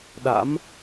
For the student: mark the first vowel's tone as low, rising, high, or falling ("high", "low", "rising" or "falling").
rising